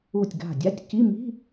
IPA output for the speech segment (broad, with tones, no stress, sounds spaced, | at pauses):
u˧˩ tʲ ɡ a̤˧˩ dʲ a˧˥˧ tʲ c i˧˥˧ m i̤˧˥˧